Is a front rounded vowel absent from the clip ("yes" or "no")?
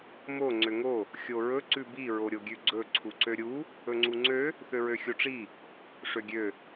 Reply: no